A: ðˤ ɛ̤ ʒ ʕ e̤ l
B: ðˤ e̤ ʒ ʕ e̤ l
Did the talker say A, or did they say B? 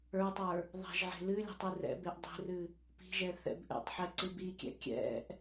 A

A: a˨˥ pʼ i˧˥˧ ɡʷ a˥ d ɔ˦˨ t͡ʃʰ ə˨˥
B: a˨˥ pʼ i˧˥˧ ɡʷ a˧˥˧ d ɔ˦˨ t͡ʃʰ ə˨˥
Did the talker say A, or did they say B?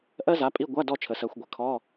B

